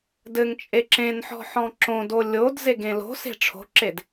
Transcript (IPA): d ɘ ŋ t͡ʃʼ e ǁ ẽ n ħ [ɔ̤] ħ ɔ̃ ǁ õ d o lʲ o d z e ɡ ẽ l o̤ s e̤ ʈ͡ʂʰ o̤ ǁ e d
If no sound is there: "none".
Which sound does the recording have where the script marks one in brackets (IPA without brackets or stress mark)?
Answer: ɔ̤